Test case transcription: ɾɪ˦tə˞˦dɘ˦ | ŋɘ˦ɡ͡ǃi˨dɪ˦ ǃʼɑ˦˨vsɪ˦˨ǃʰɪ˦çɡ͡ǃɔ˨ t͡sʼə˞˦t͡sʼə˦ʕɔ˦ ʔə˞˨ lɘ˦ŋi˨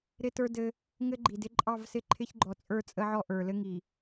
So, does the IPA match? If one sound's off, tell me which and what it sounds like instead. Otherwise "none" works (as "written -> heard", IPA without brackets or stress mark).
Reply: none